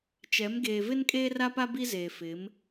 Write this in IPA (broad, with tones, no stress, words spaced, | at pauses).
t͡ʃɛ˨˦m ɡeː˨vɪ˦n kʼeː˦ra˦pa˦ bi˦zeː˨fɪ˨˦m